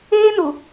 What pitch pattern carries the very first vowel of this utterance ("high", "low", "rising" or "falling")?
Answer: high